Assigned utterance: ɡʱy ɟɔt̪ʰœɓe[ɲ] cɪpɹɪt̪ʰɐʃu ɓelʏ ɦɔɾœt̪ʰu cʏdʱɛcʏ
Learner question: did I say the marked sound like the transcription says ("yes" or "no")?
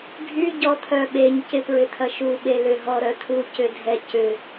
yes